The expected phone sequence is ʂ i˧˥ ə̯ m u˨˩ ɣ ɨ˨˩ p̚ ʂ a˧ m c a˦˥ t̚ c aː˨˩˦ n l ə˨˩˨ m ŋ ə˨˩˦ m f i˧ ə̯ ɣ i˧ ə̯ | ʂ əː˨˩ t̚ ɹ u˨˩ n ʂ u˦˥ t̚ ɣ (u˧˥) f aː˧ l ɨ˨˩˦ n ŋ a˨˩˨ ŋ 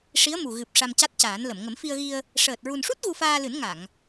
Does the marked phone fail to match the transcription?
yes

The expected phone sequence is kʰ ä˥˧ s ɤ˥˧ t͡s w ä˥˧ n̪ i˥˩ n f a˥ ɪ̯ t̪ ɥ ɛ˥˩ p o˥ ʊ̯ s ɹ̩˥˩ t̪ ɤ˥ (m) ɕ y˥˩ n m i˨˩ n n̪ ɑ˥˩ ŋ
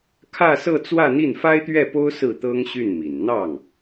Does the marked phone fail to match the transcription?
yes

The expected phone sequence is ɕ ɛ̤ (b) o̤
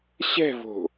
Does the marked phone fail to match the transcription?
yes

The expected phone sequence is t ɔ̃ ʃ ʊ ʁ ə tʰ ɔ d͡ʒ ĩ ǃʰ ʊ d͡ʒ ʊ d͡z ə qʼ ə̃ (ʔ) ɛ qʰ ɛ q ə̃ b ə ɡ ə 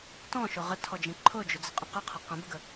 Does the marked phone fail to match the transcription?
yes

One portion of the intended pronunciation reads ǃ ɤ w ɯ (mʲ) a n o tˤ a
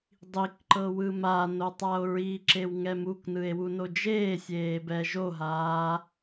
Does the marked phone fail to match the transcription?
yes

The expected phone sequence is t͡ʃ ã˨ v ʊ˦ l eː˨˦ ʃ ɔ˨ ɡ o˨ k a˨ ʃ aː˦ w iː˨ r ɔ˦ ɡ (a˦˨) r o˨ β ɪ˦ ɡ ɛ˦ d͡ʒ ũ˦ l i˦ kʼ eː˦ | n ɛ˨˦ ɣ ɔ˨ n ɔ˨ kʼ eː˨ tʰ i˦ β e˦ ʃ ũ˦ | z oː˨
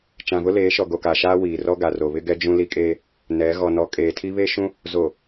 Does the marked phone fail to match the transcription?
yes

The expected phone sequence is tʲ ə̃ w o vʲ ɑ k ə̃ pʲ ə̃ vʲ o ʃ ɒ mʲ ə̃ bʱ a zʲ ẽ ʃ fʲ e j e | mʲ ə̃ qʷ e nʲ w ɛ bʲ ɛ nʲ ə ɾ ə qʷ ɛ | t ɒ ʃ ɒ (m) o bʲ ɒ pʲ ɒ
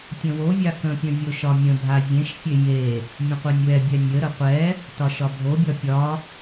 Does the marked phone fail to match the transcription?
yes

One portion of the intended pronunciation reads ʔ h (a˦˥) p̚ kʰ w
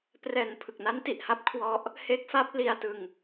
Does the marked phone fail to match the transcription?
no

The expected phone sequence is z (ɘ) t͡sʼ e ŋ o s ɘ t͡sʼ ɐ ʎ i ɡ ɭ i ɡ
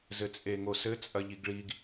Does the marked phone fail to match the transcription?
no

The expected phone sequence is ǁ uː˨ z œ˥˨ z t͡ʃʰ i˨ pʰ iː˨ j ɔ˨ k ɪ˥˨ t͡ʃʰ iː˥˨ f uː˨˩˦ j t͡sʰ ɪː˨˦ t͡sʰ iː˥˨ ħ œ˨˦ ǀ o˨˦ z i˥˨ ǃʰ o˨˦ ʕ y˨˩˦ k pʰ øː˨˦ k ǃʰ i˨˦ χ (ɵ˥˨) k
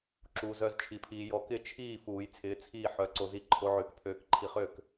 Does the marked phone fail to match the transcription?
yes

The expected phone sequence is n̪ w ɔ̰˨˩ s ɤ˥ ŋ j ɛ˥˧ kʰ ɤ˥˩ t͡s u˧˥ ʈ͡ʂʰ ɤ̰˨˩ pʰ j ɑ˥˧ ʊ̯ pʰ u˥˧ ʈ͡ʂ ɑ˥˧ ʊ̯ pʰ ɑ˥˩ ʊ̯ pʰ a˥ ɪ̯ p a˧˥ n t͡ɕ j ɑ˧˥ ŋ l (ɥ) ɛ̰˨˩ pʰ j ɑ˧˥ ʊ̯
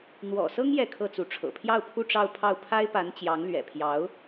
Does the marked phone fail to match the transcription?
no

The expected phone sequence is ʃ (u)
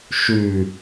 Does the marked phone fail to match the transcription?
yes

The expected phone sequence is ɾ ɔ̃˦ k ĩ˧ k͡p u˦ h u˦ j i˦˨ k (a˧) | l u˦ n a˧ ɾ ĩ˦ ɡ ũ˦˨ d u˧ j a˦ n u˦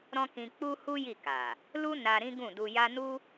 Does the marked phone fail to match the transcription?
yes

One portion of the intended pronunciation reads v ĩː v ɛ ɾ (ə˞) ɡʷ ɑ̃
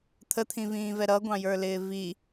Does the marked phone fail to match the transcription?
yes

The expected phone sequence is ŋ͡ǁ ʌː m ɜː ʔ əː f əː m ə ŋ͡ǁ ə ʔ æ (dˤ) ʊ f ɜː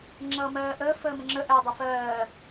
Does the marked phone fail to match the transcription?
no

